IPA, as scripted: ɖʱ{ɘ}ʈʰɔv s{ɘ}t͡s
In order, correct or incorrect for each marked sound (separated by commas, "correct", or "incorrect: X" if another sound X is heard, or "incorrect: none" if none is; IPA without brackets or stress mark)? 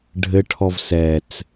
correct, incorrect: ɛ